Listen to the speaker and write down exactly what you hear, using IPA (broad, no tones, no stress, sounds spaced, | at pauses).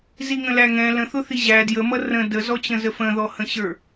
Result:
z i ŋ ə̃ l æ ŋ ɛ̃ l ə̃ θ ʊ θ i ʑ æ d j ə m ʌ r ə̃ d ə z ɔ t͡ɕ ə̃ z ə f ə̃ ð ɔ h ə̃ ɕ ə˞